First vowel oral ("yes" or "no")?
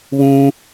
no